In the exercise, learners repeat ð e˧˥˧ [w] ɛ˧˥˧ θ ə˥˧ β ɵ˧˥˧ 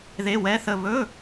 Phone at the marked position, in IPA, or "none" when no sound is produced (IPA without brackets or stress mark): w